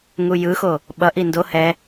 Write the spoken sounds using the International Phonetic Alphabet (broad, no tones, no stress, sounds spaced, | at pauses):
ŋ u j ɯ x o | ɓ ʌ ʔ i n d o h ɛ